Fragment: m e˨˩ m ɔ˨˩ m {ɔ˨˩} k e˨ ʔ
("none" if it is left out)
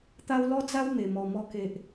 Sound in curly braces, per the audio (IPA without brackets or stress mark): ɔ˨˩